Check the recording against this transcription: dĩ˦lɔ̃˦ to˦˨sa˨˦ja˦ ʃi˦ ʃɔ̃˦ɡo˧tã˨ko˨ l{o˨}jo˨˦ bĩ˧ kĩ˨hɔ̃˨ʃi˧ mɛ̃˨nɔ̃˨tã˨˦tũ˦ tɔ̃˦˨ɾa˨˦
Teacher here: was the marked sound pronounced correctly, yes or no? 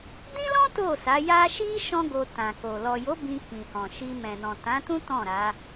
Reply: no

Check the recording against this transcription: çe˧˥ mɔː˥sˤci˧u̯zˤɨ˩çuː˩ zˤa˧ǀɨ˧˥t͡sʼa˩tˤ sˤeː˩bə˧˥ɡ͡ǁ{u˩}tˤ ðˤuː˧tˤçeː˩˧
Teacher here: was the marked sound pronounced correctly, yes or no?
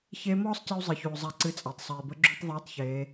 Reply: no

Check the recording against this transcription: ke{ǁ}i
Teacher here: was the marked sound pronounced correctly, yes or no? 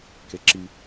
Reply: yes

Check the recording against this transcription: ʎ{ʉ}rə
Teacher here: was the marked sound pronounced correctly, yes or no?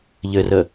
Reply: no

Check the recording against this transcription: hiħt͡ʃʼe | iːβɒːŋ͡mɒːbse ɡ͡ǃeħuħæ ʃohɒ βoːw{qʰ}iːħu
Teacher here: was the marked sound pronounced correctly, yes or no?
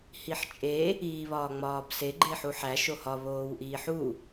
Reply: no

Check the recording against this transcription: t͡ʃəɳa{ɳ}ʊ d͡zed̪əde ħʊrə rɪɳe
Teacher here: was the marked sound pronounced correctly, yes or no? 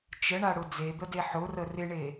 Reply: no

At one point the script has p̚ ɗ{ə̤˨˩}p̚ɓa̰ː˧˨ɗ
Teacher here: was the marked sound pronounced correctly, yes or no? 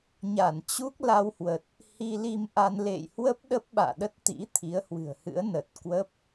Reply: no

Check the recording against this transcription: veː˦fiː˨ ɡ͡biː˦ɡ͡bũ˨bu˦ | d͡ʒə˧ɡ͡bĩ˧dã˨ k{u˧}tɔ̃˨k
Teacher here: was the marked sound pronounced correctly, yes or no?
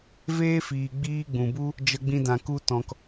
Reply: yes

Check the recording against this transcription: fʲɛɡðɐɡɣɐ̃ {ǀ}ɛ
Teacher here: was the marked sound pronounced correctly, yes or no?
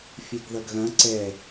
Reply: yes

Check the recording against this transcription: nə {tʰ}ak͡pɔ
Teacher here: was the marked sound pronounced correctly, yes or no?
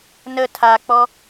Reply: yes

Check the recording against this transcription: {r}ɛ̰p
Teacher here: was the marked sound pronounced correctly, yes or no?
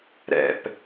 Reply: no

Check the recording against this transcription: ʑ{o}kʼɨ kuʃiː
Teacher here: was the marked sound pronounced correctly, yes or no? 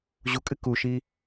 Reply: no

